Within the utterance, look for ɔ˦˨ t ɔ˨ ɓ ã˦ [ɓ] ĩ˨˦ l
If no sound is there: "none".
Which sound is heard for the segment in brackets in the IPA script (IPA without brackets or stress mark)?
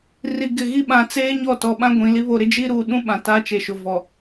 ɡʷ